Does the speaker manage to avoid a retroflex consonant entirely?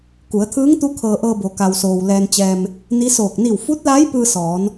yes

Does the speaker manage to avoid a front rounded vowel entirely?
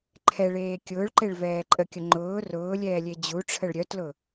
no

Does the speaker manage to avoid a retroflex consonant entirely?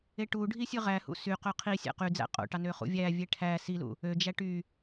no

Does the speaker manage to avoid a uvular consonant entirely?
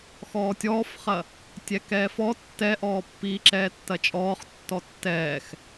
no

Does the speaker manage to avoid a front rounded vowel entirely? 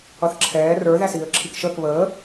yes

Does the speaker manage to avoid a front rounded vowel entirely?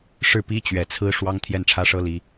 yes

